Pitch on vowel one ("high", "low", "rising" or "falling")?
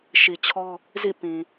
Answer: low